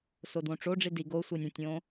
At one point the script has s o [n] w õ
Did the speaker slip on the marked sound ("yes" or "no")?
yes